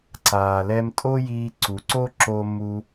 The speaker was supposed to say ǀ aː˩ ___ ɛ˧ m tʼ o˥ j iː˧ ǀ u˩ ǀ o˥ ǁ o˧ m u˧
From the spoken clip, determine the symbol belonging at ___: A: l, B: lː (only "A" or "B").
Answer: A